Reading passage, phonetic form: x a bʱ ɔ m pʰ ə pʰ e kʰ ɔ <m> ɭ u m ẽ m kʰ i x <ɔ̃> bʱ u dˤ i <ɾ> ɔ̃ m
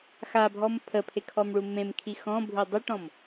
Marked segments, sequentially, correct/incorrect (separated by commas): correct, correct, incorrect